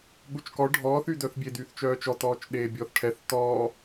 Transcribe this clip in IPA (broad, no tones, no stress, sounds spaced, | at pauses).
ɠ u t͡ʃ k ɔ ɖʱ ɔː θ y d œ θ bʲ e d yː θ t͡ʃ œː t͡ʃ ɔ t ɔː t͡ʃ ɗ eː bʲ ɔː θ ʈʰ ɛ θ t ɔː